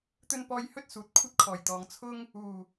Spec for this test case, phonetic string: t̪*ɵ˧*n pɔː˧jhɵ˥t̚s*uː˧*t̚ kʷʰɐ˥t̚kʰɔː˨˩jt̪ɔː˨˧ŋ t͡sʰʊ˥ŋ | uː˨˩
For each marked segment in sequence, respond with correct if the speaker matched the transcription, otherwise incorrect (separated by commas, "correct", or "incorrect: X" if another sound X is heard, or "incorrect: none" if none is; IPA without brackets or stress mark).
correct, incorrect: uː˨